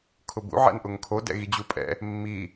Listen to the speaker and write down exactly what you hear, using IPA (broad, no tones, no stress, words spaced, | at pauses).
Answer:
kʰʊbṵ ʕɛ̰nʔʊŋkʰo dɛ̰ɣid͡ʑupʼɛ̰ | mːi